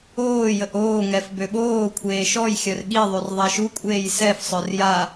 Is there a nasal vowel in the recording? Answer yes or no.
no